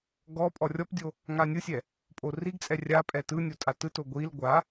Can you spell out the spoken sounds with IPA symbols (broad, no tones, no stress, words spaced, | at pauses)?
ɡɔ pʼɔrʲɔpdʲo | ŋanʲɯsʲɛ | pʼoriɡt͡sʼɛ rʲa pʼɛtɯnʲo tʼatɯto ɡʷil ɡʷa